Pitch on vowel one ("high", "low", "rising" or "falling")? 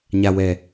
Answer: low